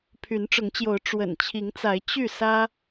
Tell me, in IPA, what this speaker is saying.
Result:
pʰ y˨˦ n ʈ͡ʂ ʊ˨˦ ŋ t͡ɕ j o˨˦ ʊ̯ ʈ͡ʂ w ə̰˨˩ n t͡ɕʰ i˨˦ ŋ t͡s a˨˦ ɪ̯ t͡ɕ y˥˨ s ä˦

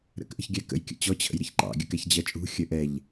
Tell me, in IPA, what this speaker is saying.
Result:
ɾ ə̰ k ʔ ə̤ ç ɡʲ æ k ə̰ j kʲ ə̰ t͡ɕ ɔ t͡ɕʰ ə̰ j ɾ ə ç ǃ ɑ̰ ɡʲ ə k ɛ ç d͡ʑ ɜ t͡ʃʼ ṳ xʲ ə ʔ ɛ ʎ

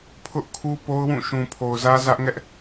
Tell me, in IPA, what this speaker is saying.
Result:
pʰ ʊ˦ ʔ kʰ u˦ p o˦ ʊ̯ w ũ˦˨ ʃ ũ˨ pʰ o˨ ʊ̯ z ä˦ z ä˦ ʔ ŋ ɛ˦ ʔ

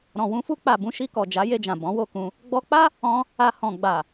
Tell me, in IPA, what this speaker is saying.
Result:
ɾ ɔ̃˨ w ũ˧ f u˧ k͡p a˨ b ũ˨˦ ʃ i˧ k ɔ˨ d͡ʒ a˨˦ j e˧ d͡ʒ ã˨ b ɔ̃˨˦ w o˦˨ k ũ˧ | ɡ͡b ɔ˧ k͡p a˦ | ɔ̃˧ | a˧ h ɔ̃˨ ɡ͡b a˨

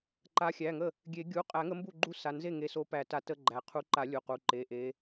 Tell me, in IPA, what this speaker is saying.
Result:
ǃ a˨˦ xʲ æ˩˧˩ ŋ ə˥˩ | ɡʲ e˨˩˦ ɡʲ u˩˧˩ qʼ æ˨˩˦ ŋ ə˨˦ m b u˥˩ ɡ͡ǃ u˥˩ s a˩˧˩ n z e˥˩ ŋ e˨˦ s o˨˦ p æ˨˩˦ t a˨˩˦ t ə˥˩ ɡ͡ǃ æ˩ qʰ u˨˦ ǃ a˨˩˦ lʲ u˩˧˩ q u˩˧˩ ǃ e˩˧˩ ʔ e˨˦

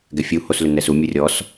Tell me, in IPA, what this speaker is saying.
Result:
ɡ ɛ fʲ u h o s l ʏ n ɛ s u mʲ u rʲ ɔ s

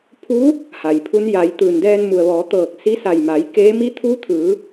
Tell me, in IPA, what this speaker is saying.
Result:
pʰ u˧˥ | h a˩ j pʰ u˧˥ n j a˩˧ j t̪ ɯː˩ n d ɛː˧ n m u˩ ə̯ ʋ ɔː˩˧ t̪ ɤː˧˩ k̚ s i˧˥ s a˧˩ j m a˩˧ j k eː˧˥ m i˧˥ t̪ʰ uː˧˥ t̪ʰ ɯː˩˧

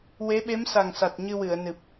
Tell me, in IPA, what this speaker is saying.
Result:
w e˧˥ ɓ e˧˥ m s a˨˩ ŋ s a˨˩ t̚ ɲ ɨ˧ w ɨ˨˩˨ ə̯ n ɨ˨˩ p̚

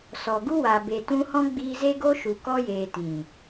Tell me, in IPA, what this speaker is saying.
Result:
s ɔ˨ ɡ u˦ w a˨ b e˨ t ũ˧ h ɔ̃˦ ɡ͡b iː˧ z e˦ ɡ o˦ ʃ u˨ k ɔ˧ j eː˨ t ĩ˨

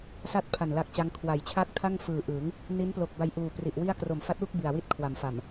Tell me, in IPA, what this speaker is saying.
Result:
s a˥˩ t̚ pʰ a˨˩ n l a˦˥ k̚ t͡ɕ a˦˥ ŋ kʰ w a˩˦ j t͡ɕʰ a˥˩ k̚ tʰ a˥˩ ŋ f ɯː˨˩ ʔ ɯ˩˦ ŋ | n i˦˥ n p l o˨˩ k̚ b a˧ j ʔ uː˨˩ p r i˨˩ ʔ w i˥˩ a̯ k r o˨˩ m f a˦˥ t̚ w u˥˩ k̚ b i˨˩ a̯ w i˥˩ t̚ kʰ w a˩˦ m f a˨˩ m

